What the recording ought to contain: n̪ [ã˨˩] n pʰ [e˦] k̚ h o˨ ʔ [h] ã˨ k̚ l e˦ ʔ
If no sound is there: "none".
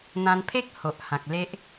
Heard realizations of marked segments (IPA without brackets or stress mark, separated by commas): ã˧, e˦, h